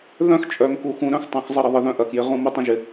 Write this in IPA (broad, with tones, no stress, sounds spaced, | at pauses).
ð œ̃˦ x t͡ʃʼ œ˨ ŋ k u˨ x ũ˨ ɾ œ̃˦ x tˤ ũ˨ x zˤ ə˦ ɾ ə˨ ðˤ ɪ˨ ð œ̃˦ ʔ ɐ˨ k j ɪ˨ ʁ ũ˦ m ə˦ tˤ ə̃˦ ʒ ɪ˨